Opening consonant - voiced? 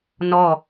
yes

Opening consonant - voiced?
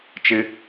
no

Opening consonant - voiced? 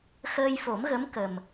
no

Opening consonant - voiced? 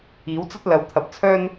yes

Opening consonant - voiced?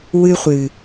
yes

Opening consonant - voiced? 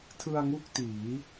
no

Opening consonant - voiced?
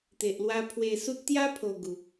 no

